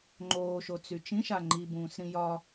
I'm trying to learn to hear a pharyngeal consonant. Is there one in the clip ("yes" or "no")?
no